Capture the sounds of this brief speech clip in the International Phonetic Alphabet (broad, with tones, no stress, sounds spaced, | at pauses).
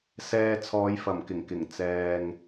s ɛː˨ t͡sʰ ɔː˨˧ j f ɐ˨˩ m k ɪ˨˩ ŋ k ɪ˨˩ ŋ t͡s ɛː˨ ŋ